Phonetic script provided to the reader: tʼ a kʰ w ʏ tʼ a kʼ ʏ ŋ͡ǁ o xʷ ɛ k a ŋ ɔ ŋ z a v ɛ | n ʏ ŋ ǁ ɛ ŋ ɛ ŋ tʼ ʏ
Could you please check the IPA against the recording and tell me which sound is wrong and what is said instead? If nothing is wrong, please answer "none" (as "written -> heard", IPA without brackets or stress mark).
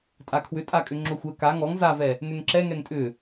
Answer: none